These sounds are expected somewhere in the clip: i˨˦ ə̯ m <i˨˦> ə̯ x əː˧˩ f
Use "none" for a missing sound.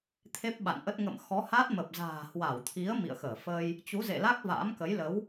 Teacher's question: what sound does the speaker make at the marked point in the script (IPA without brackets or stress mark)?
ḭ˧˨